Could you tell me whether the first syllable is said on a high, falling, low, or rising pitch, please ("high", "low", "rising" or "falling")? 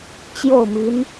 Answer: falling